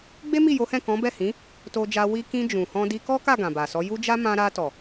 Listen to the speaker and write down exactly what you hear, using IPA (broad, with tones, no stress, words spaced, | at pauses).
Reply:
ɡ͡be˦mi˦˨jo˨˦hɛ̃˦˨ kɔ̃˨˦bɛ˦˨hĩ˨˦ | to˧d͡ʒa˧ wi˧kĩ˧ d͡ʒũ˨hɔ̃˧ di˧kɔ˦ka˦˨ ɡã˨ba˨sɔ˨˦ ju˦d͡ʒa˦ mã˧ɾa˧tɔ˨